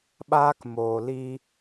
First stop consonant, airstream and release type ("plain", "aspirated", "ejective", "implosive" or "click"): implosive